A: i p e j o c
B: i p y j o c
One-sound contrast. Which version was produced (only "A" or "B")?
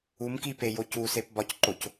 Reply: A